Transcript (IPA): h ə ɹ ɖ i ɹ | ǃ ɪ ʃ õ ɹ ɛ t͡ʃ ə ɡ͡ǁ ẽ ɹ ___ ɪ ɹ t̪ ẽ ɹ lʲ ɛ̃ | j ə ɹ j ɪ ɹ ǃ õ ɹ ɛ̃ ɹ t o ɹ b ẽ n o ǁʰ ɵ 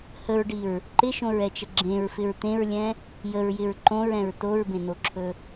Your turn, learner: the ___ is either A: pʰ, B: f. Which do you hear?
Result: B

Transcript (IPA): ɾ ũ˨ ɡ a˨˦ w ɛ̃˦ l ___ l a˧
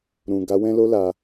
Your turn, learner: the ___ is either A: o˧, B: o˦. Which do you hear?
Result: B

